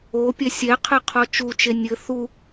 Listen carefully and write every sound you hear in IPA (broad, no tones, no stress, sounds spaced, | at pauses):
o pʲ ɛ sʲ ɛ qʰ ɘ qʰ ɔ t͡ʃ u t͡ʃ e nʲ ɘ θ u